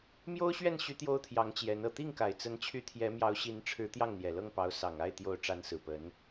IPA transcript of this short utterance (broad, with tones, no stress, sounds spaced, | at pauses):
m j o˥ ʊ̯ ɕ ɥ ɛ˥˩ n ɕ y˧˥ t̪ j o˥ ʊ̯ t̪ʰ j ɑ˧˥ ŋ t͡ɕ j ɛ˧˥ n ɤ˨˩ t̪ i˥˩ ŋ k a˨˩ ɪ̯ t͡s ə˧˥ n t͡ɕʰ y˧˥ t̪ʰ j ɛ˧˥ m j ɑ˧˥ ʊ̯ ɕ i˧˥ n ʈ͡ʂʰ ɻ̩˧˥ t̪ j ɑ˥˩ ŋ n̪ j ɛ˨˩ l ɤ˥˩ ŋ p ɑ˧˥ ʊ̯ s ɑ˨˩ ŋ a˥˩ ɪ̯ t̪ j o˧˥ ʊ̯ ʈ͡ʂ a˧˥ n s ɹ̩˨˩ p ə˧˥ n